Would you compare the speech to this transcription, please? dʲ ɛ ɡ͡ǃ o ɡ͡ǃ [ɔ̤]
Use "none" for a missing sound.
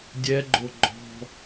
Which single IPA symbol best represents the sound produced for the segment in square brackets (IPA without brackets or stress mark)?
ɔ̤